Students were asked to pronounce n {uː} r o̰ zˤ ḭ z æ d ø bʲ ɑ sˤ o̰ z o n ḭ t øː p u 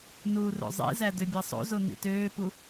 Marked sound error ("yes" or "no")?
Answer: no